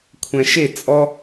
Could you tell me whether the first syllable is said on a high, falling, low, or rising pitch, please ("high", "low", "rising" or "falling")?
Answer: low